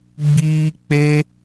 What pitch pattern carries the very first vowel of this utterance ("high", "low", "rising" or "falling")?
high